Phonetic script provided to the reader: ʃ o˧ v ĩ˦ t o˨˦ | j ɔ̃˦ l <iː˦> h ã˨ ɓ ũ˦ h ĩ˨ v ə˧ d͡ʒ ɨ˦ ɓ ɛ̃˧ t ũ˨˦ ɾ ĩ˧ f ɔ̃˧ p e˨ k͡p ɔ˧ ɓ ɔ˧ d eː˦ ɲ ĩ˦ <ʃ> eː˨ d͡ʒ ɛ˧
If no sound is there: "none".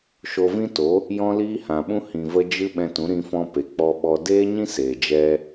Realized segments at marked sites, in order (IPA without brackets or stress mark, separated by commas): iː˦, s